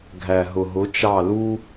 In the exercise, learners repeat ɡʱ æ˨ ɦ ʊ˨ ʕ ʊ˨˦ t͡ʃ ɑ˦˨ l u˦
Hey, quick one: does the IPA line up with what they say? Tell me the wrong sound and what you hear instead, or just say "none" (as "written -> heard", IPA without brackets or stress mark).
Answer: ʕ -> ɦ